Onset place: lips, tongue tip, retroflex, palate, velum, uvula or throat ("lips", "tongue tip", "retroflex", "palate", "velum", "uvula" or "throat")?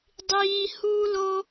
tongue tip